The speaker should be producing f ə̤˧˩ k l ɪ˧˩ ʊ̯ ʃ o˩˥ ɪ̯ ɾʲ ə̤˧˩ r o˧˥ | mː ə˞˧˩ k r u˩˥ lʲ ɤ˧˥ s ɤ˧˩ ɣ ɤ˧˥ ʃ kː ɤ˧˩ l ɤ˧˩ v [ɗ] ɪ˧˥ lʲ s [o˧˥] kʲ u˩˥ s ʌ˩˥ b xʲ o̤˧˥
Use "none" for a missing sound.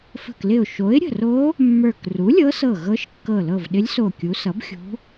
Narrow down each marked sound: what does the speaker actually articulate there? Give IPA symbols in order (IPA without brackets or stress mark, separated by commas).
ɗ, o˧˩